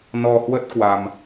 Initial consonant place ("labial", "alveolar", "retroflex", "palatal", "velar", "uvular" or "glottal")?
alveolar